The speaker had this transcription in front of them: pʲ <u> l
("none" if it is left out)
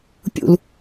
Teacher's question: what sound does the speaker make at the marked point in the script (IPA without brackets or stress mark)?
ṵ